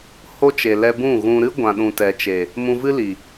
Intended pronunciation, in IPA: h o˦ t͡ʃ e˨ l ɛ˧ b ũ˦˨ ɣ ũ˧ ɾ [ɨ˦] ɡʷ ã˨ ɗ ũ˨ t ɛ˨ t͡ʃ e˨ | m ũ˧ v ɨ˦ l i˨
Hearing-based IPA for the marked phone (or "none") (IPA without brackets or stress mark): ɨ˦